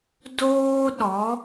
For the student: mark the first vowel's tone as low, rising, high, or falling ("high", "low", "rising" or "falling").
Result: high